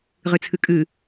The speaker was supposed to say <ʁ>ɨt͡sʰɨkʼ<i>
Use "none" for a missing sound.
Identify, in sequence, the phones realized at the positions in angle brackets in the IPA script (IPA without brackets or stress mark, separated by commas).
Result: ʁ, ɨ